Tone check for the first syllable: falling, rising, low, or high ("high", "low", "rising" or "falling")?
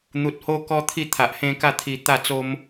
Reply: low